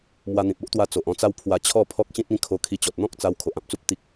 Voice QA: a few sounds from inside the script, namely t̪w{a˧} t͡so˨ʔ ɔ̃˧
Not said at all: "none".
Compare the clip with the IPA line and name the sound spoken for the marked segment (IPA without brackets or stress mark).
a˧